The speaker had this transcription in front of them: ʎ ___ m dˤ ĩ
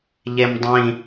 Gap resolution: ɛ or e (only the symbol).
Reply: e